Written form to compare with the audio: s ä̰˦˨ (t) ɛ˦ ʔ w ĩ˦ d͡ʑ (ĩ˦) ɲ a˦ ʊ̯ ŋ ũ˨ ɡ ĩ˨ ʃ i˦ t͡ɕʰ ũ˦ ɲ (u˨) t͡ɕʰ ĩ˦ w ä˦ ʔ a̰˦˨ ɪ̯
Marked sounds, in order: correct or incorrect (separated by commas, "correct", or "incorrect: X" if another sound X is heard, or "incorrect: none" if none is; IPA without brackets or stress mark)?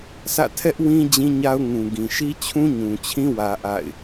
incorrect: tʰ, correct, incorrect: ũ˨